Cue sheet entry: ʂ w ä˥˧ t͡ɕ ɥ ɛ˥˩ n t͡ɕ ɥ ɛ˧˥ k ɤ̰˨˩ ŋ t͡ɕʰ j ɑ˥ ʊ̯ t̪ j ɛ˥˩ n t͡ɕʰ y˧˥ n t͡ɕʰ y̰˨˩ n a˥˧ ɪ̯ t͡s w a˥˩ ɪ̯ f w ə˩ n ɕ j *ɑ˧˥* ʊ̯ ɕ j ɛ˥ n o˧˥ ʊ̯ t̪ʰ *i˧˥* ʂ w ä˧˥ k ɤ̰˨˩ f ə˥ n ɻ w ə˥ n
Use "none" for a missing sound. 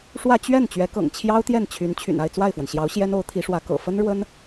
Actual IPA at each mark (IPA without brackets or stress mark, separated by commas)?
ɑ˧˥, i˧˥